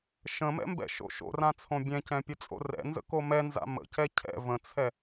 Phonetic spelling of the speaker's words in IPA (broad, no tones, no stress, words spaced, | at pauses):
ʃə̃mɛ̰mbɛ̰ʃo̰ ʃo̰rãt͡sʰõ bʲɛ̃cɛ̃pʲət͡sʼo̰ rɛ̰nzə̰ko mɛnza̰ mə̰cɛ cʰɛ̰ və̃t͡sʰɛ